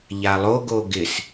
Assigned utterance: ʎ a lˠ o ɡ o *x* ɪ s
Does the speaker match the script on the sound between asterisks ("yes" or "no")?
no